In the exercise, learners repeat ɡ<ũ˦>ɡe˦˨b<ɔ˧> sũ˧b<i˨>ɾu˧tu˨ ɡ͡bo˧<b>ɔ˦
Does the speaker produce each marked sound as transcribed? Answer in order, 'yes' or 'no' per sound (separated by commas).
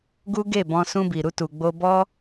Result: no, no, yes, yes